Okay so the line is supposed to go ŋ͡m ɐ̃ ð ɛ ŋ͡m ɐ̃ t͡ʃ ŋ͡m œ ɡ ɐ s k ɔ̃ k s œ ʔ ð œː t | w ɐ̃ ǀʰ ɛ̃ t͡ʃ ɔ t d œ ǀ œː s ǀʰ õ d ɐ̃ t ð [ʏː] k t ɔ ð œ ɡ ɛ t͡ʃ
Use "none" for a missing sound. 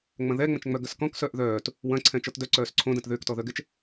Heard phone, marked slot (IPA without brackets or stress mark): ʏː